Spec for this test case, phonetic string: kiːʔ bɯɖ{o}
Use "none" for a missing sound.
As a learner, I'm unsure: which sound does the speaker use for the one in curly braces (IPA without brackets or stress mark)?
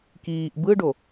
o